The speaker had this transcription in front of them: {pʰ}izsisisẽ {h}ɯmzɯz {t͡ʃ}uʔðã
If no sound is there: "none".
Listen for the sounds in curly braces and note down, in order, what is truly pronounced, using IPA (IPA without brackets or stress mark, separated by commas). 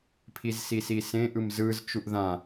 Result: pʰ, ʔ, t͡ʃ